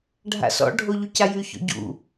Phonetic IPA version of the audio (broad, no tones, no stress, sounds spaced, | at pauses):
ɖʱ a̰ s ɔ̰ ɖʱ o ʎ u c a j y ç ɔ̰ ɟ ṵ